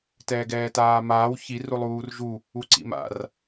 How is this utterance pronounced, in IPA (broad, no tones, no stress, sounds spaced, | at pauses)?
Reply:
t ɛː ɡ ɛː t aː m aː w ç i r u lˠ uː r ʒ u | u ǀ ḭ m a̰ r